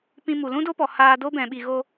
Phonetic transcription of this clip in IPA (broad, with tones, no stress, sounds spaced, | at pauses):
p ĩ˧ m u˨ l ũ˦ d o˦ p ɔ˨ h aː˧ d o˦ b ɛ̃˨ ɓ i˨ ɣ o˧